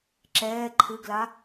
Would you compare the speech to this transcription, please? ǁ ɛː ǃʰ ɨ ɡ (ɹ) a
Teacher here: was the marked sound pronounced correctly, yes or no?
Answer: no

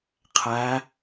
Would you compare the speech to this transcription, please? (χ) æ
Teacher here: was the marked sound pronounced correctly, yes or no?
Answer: no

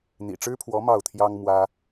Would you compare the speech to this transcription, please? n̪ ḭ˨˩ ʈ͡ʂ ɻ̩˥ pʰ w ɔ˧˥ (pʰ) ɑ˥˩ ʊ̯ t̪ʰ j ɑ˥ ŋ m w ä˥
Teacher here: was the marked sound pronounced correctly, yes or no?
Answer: no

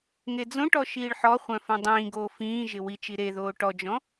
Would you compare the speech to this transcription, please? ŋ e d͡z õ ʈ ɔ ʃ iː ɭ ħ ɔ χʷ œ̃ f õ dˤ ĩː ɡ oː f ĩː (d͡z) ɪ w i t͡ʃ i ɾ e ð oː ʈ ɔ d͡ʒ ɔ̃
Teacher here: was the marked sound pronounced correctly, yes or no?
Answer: no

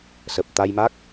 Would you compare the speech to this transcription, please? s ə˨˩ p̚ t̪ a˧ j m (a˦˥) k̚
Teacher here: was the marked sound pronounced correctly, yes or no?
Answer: yes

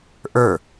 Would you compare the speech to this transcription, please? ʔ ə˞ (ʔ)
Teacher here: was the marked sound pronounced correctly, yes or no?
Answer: no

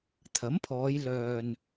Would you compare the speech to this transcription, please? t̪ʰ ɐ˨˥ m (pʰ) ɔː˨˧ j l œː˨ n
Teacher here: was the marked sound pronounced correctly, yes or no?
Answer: yes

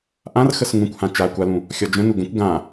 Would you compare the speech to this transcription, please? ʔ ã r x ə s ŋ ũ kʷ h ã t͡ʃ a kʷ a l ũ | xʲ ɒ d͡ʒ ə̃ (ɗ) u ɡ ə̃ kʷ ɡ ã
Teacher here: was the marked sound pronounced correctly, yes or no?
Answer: no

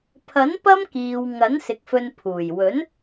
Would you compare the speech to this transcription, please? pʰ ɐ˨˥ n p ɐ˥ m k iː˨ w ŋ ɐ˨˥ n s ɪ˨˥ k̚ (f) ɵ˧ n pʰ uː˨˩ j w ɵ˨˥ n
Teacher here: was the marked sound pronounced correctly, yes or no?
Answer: yes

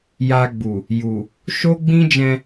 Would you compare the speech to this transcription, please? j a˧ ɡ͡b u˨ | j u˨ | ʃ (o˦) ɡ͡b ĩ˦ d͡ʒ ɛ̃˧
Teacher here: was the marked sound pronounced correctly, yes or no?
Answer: yes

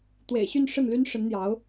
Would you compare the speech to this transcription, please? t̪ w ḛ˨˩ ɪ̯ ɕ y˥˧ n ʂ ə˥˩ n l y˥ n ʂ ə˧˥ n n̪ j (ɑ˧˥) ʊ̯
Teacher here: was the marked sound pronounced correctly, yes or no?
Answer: yes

